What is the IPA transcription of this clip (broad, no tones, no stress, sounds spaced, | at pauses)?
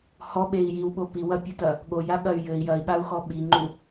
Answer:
h ɔ ɓ e i̯ j i w ɓ o p i w ɐ pʲ o t ɐ | ɠ o j a ɠ ɐ y̯ j ɘ i̯ j ɐ i̯ ɠ a u̯ x ɔ ɓ i ŋ͡ǃ u